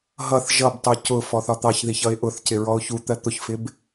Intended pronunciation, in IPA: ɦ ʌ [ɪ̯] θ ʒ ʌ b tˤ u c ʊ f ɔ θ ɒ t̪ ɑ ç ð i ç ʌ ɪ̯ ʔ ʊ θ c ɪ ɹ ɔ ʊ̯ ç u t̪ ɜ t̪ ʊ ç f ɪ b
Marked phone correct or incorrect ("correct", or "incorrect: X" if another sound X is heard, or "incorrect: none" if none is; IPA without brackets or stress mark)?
incorrect: none